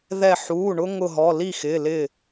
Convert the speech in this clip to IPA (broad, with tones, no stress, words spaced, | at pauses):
ðɛ˧˩ ħuː˩˧˩ ɳʊ˥ ŋʊ˧˩ɦɔ˩˧˩ li˥˩xɪː˩˧˩ lɪ˥˩